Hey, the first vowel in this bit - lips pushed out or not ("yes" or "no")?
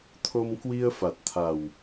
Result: yes